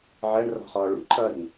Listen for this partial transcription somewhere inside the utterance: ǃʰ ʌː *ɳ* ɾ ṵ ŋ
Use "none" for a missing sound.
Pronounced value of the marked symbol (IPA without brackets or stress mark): none